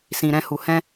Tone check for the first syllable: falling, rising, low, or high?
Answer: low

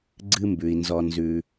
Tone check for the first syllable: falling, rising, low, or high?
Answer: high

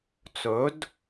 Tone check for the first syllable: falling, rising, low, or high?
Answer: rising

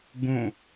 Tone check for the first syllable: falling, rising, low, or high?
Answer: falling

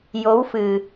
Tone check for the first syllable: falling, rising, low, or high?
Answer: rising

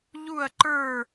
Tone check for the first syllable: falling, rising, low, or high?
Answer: falling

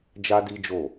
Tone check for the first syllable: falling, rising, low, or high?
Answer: high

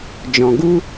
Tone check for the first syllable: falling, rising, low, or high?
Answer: low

